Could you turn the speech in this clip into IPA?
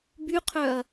b y qʰ œ ɐ̯

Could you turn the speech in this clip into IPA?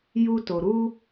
j u˧ t o˨ ɾ u˧

